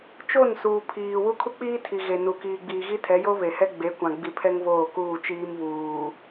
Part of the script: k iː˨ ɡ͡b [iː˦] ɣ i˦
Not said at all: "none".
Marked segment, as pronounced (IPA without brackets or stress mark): iː˨